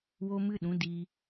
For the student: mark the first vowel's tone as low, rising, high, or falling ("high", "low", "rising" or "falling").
high